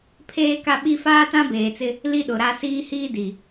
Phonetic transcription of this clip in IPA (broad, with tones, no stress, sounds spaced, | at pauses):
pʰ eː˦ k a˦ ɓ i˦ f aː˦ t ã˦ b eː˨ t͡s ɪ˦ | l i˦ ɗ ʊ˨ ɾ a˦ s iː˦ h iː˦ d i˨